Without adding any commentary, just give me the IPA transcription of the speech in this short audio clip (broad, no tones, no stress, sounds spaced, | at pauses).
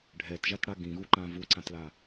ɖʱ ɛ t ʒ a t ɽ a ɡ ĩ ɣ u ǃ ã v u ǀ ã t l a